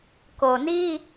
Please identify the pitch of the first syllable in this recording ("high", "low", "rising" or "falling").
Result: low